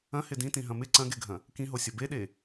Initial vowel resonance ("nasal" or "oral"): nasal